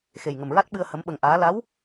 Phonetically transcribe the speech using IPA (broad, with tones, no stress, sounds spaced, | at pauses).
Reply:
x e˨˩ j ŋ ə˨˩ m ɹ a˦˥ t̚ ɓ ɨ˧ ə̯ h ə˧˥ m ɓ ə˧ ŋ ʔ aː˧˥ l a˧˥ w